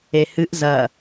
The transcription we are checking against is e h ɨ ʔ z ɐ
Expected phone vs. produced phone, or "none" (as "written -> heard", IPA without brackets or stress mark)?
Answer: none